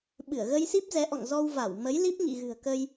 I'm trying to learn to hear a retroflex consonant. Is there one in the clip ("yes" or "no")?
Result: no